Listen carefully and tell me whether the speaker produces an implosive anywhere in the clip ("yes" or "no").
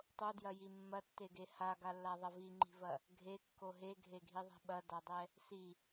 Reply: yes